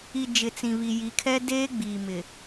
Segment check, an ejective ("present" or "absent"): absent